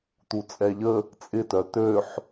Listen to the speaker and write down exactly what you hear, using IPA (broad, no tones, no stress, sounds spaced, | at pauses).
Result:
t̪ u t͡sʼ ɛ ʎ ə | t͡sʼ ɪ t œ t̪ ø ħ